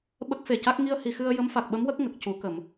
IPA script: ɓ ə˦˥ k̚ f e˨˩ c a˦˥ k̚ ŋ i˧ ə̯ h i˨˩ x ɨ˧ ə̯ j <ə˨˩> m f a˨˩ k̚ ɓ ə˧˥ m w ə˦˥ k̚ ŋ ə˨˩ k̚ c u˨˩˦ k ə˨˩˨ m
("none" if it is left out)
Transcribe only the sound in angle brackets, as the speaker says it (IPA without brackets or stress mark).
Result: ə˧˥